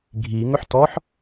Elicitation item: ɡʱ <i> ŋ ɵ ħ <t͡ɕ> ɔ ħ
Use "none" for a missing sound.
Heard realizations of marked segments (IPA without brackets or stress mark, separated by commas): i, t